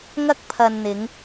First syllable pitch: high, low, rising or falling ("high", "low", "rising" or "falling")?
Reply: high